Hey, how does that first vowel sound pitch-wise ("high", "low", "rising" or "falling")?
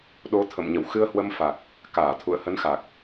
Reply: rising